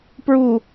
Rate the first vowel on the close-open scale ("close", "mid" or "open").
close